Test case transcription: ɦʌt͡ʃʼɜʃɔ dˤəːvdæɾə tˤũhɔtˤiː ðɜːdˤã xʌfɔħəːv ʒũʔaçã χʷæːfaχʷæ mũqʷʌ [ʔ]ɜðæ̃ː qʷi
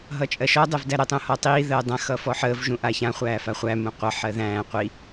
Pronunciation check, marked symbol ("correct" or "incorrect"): incorrect